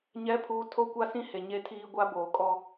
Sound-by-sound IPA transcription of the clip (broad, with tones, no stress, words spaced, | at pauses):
ɲɛ˨˦pʰuː˨ tʰo˦kʷa˦sĩ˦ he˨ɲe˦tʰiː˦ ɡʷa˦ boː˨kʼɔ˦